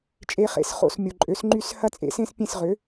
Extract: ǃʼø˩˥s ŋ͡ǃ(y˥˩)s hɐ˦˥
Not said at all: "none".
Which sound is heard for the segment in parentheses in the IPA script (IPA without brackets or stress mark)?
y˥˩